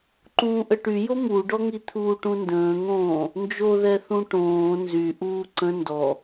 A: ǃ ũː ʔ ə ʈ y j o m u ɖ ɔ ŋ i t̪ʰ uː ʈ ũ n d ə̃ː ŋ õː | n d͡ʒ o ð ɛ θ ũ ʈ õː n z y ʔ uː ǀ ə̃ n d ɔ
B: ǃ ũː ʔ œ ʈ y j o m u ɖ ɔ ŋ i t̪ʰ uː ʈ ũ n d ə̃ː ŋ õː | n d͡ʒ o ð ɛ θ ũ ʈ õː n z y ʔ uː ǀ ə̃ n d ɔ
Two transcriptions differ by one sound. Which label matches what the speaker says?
A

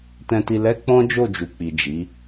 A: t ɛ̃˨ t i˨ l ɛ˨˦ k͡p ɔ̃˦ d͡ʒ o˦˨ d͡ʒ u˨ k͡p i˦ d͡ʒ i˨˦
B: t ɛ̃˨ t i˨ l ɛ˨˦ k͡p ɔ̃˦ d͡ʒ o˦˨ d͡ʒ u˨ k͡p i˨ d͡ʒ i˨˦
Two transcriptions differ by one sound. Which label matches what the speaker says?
B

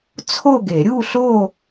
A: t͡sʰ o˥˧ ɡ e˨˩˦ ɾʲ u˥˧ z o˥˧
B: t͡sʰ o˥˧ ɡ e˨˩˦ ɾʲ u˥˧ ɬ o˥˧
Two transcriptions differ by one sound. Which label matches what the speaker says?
B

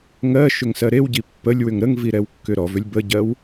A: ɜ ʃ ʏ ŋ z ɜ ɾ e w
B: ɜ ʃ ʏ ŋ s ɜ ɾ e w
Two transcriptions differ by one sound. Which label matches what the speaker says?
B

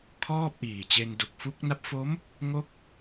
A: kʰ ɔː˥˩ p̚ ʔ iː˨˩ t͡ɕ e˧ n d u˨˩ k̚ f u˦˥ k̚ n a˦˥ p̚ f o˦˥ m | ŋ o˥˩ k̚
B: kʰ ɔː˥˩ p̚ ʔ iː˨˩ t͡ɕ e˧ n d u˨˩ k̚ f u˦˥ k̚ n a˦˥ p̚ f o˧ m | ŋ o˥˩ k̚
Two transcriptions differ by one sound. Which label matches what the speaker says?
A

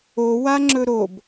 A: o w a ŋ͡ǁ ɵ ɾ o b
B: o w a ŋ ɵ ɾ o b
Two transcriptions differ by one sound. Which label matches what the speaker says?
A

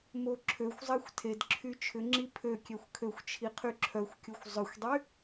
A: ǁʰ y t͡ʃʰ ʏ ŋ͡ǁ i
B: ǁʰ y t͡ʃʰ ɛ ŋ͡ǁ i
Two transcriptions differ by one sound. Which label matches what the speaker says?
A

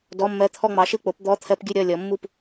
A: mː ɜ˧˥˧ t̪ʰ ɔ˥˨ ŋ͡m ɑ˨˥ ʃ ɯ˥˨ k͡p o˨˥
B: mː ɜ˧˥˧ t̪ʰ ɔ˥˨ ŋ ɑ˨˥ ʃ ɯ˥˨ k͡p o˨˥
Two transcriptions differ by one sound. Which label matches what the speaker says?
A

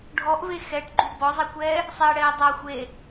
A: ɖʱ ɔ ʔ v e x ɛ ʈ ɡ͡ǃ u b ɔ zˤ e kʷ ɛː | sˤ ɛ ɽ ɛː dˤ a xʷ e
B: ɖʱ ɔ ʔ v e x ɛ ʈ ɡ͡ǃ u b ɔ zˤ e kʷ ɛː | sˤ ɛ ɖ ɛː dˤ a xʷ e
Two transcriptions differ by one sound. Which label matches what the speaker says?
A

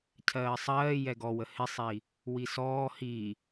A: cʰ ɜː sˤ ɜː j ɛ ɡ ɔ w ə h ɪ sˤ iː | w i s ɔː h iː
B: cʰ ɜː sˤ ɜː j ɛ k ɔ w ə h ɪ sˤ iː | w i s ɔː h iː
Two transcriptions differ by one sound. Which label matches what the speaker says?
A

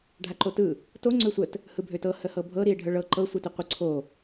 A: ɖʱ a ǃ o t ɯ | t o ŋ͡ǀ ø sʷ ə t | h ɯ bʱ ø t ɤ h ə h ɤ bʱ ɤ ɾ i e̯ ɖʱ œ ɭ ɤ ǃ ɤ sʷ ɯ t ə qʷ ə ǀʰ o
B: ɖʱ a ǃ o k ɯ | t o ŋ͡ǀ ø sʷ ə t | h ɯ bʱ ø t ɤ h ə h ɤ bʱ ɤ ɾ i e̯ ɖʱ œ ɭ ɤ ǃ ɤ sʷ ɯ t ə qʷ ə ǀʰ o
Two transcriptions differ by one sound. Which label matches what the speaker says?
A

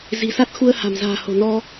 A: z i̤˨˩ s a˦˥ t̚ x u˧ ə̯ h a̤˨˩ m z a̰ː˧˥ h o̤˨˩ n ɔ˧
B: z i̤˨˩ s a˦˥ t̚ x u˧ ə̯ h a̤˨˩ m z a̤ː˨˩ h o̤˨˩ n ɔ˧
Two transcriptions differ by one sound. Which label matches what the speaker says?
B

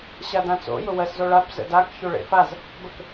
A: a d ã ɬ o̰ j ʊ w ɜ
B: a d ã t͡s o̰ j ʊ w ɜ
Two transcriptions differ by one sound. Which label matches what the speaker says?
B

